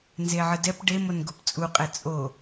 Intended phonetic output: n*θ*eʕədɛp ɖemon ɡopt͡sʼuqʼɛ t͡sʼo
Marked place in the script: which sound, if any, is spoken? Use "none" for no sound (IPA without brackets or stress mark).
z